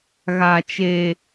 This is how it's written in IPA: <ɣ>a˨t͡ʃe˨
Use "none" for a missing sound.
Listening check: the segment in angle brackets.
ɣ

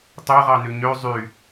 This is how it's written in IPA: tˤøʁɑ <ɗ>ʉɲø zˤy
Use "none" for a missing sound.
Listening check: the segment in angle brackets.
n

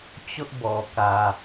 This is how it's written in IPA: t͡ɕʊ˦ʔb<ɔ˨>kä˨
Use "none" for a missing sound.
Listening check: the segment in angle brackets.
ɔ˨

